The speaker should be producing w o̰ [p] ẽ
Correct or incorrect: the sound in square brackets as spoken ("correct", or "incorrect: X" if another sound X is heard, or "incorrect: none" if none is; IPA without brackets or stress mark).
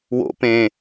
correct